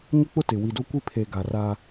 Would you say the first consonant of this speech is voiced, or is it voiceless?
voiced